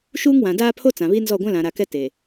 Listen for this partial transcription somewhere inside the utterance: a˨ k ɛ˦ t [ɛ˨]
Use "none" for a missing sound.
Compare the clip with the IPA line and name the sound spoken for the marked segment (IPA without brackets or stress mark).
e˨